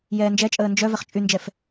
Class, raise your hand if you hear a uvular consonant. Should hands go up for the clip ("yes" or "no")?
yes